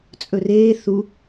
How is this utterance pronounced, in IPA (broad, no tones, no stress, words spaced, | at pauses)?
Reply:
t͡sʼɵreː θu